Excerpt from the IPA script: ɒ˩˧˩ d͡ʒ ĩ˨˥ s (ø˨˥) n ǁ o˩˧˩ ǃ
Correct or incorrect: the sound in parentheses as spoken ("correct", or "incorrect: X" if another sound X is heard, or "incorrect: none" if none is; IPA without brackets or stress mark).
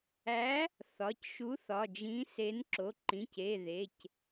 incorrect: e˨˥